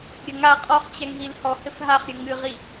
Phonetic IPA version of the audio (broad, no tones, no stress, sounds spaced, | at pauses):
ɾʲ ɘ ŋ a qʼ ɔ χ t͡ɕ ɛ ŋ ɦ i l h ɔ h ɘ f ɦ a χ ɾʲ ɘ ŋ ɨ ʁ i